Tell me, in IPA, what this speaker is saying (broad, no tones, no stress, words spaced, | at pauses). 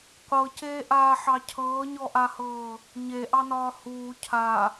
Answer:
qʷɤceːʔaːħɑ cʰɤːɲɔʔahɤː | ɲeʔɑnɒː huː cʰa